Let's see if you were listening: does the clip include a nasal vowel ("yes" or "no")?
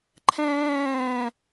yes